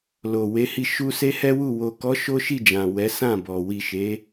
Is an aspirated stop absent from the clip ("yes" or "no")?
yes